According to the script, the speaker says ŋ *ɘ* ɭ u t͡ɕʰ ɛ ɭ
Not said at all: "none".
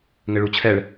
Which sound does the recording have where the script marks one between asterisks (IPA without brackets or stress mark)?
ɘ